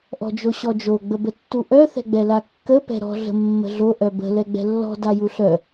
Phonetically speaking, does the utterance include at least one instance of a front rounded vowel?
yes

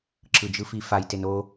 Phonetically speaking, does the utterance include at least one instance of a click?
yes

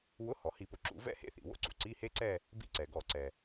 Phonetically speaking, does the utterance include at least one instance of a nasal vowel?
no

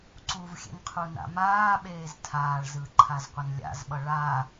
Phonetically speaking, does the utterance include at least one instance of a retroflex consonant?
yes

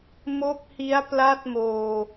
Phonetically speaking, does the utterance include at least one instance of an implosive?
no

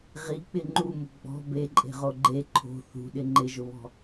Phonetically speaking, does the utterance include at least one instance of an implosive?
yes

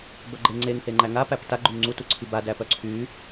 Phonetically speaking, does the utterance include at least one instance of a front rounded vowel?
yes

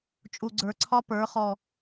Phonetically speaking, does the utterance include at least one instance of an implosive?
no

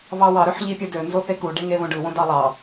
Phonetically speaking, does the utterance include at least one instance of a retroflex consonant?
yes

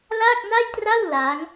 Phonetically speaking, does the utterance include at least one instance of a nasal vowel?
no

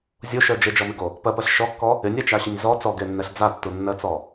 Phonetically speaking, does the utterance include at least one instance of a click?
no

